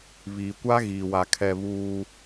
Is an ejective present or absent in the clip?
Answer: absent